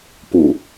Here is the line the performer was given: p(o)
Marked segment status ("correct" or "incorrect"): incorrect